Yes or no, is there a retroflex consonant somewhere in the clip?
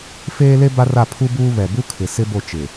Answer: no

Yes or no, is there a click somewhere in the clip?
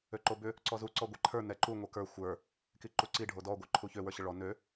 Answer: yes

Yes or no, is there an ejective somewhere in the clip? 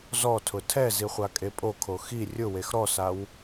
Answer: yes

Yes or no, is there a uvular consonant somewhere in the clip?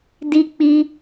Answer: no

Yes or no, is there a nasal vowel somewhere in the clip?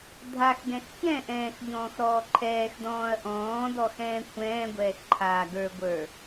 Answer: yes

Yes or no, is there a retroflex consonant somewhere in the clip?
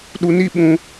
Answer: no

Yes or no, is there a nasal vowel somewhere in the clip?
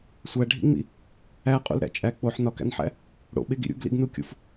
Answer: no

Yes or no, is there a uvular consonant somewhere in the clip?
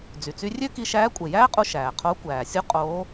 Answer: yes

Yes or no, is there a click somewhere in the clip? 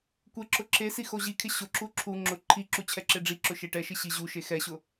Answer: yes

